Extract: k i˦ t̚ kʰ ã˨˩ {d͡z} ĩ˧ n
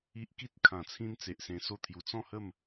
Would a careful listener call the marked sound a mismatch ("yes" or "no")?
yes